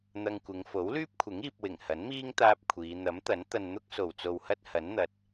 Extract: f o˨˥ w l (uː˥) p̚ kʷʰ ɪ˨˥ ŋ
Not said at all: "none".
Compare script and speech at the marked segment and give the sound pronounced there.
yː˥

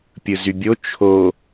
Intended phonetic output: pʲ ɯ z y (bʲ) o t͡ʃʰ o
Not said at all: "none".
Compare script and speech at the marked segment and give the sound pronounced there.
bʲ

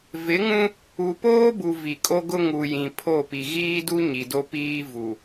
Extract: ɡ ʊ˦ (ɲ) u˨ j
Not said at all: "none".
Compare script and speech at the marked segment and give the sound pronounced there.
ŋ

